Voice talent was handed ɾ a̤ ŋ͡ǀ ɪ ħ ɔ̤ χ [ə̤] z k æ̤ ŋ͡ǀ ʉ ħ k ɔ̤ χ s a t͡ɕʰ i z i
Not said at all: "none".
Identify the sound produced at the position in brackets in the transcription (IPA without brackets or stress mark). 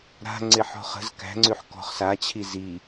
ə̤